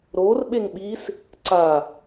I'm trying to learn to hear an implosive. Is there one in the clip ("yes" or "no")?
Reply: yes